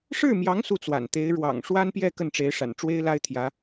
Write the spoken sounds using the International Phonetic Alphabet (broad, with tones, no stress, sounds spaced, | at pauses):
ʂ ɻ̩˥˩ m j ɑ˧˥ ŋ s u˥˩ t͡s w a̰˨˩ n t̪ e˧˥ ɪ̯ ɻ w ɑ̰˨˩ ŋ ʂ w a˥ n p j ɛ˥˧ k ə˥˩ n ʈ͡ʂ e˧˥ ɪ̯ ʂ a̰˨˩ n ʈ͡ʂ w e˥ ɪ̯ l a˥ ɪ̯ t̪ʰ j ä˧˥